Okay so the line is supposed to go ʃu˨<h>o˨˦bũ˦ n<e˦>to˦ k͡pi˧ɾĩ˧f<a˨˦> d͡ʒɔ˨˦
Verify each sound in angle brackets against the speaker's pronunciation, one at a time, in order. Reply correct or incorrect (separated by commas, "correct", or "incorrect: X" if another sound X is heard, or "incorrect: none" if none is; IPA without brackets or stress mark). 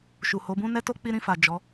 correct, incorrect: ɛ˦, incorrect: a˨